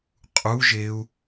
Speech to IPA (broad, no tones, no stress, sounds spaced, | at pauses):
qʼ u ʒ e u̯